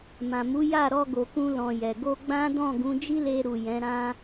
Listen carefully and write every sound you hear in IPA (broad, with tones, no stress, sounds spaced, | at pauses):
m ã˨ m u˨˦ j a˦˨ ɾ ɔ˧ ɡ o˨ k ũ˧ l ɔ̃˨ j ɛ˨ ɡ o˧ ɡ͡b ã˦ d ɔ̃˦˨ ɡ ũ˨˦ d͡ʒ i˦ l e˧ ɾ u˨ j ɛ̃˨˦ ɾ ã˦